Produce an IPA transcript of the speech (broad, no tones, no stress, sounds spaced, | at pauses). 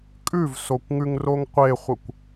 kʼ ʉ v s o kʷ ŋ ʉ ŋ r o ŋ qʷ e χʷ ə kʷ